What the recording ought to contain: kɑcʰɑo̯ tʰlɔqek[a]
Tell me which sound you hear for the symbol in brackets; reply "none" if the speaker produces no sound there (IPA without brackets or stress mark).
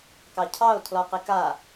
a